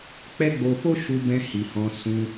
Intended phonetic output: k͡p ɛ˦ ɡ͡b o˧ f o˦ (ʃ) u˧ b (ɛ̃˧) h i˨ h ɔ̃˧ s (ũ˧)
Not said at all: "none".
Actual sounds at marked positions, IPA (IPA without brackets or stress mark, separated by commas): ʃ, ɛ̃˧, ũ˧